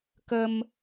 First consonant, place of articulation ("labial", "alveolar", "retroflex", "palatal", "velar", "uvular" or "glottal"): velar